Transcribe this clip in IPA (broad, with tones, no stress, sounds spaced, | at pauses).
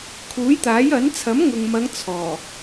kʰ uː˨˥ j t̪ aː˨˥ j ɐ˨˥ n t͡sʰ ɐ˨˥ m ŋ ʊ˨ ŋ m ɐ˨˧ ŋ t͡sʰ ɔː˨˩